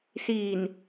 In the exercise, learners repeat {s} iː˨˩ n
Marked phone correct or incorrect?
correct